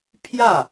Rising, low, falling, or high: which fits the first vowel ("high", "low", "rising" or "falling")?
falling